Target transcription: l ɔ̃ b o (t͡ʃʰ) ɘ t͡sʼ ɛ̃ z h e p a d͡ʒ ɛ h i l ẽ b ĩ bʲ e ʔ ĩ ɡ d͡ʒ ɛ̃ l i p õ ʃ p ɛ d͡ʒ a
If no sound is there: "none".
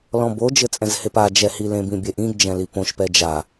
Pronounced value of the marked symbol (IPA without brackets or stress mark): d͡ʒ